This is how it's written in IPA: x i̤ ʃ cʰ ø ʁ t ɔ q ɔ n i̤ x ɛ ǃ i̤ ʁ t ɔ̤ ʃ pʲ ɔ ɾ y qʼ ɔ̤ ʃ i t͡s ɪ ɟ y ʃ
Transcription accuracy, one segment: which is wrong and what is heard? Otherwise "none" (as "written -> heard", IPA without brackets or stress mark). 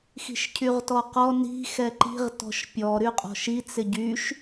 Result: ø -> y